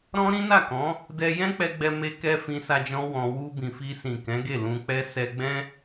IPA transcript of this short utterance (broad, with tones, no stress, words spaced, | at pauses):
ɾɔ̃˦ɾĩ˦na˦˨kɔ̃˨˦ | dɛ˧ jɛ̃˦k͡pɛ˧ɡ͡bɛ˧ me˧kɛ˧ fĩ˧sa˧ d͡ʒɔ̃˦wɔ̃˧ wu˧bĩ˨fi˧sĩ˨ kɛ̃˨˦ɡe˦˨lũ˧ k͡pɛ˦ sɛ˧ɡ͡bɛ̃˦